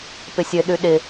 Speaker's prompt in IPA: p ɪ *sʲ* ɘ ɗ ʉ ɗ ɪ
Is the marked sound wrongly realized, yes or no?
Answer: no